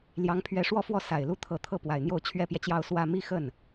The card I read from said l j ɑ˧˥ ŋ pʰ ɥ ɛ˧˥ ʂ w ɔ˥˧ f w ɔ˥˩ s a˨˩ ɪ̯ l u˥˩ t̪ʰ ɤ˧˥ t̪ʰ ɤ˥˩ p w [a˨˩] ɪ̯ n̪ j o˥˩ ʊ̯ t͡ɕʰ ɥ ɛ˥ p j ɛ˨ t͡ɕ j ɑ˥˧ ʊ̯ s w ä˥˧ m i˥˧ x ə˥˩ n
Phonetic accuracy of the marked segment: correct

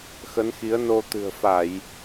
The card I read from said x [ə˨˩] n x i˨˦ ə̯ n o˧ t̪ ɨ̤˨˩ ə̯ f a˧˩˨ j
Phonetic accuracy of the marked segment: incorrect: ə˨˦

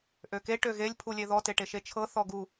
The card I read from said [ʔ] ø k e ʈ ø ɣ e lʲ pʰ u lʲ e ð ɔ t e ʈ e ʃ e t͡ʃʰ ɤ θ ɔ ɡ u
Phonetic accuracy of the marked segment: correct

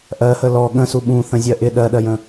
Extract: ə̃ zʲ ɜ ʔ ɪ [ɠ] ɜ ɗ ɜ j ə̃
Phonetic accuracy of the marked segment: incorrect: ɗ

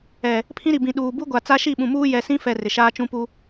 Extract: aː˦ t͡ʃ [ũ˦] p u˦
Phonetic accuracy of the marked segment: correct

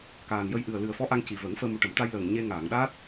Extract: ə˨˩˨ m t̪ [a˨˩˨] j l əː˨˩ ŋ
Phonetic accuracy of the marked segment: incorrect: a˧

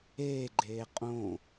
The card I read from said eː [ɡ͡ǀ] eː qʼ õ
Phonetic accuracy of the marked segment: incorrect: ɡ͡ǃ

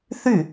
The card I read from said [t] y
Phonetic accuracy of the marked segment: incorrect: θ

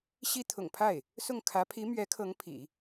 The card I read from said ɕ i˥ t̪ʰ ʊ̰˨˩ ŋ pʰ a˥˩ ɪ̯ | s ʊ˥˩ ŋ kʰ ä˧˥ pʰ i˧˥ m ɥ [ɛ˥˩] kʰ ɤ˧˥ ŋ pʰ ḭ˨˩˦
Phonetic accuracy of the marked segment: incorrect: ɛ˧˥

